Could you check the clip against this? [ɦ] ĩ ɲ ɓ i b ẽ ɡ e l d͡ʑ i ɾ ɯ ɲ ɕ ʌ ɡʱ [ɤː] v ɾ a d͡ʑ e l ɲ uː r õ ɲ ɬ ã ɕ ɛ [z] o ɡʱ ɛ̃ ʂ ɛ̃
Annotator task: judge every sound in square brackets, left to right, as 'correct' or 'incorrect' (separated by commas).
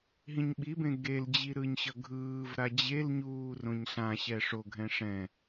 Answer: correct, incorrect, incorrect